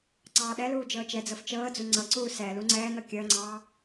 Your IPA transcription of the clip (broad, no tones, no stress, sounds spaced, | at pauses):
ǀ ɑː ɗ ɛ l uː d͡ʒ ɤː t͡ʃ ɛ d͡z ɤ f t͡ʃ ɤː d͡z u ŋ͡ǀ ɤ ǀ uː s ɛ l u ŋ͡ǀ ɛː n̪ ɤ kʲ əː ŋ͡ǀ ɑː